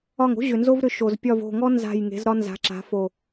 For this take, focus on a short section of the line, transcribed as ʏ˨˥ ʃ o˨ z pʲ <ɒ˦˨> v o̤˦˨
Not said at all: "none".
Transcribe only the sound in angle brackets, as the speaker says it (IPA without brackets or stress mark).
ɒ˦˨